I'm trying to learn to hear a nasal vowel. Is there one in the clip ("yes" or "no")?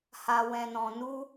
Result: yes